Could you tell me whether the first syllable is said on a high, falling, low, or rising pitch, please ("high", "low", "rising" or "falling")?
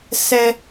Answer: high